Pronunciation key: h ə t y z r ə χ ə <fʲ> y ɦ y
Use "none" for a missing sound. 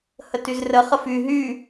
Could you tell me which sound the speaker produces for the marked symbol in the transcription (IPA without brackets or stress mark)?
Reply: f